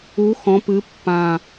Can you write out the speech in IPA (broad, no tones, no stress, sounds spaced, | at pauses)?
u x ɔ̃ p ɨ pː ã